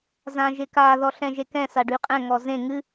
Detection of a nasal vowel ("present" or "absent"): present